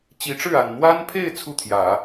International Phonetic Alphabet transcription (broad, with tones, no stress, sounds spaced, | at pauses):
t͡ɕ i˧˥ ʈ͡ʂ ɻ̩˥˩ a˨˩ n n̪ w a˥ n pʰ e˥˧ ɪ̯ t͡sʰ u˥˩ t̪ʰ j ä˨˩˦